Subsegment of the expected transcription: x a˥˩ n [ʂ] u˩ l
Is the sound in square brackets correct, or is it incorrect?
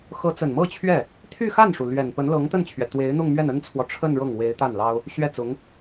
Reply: correct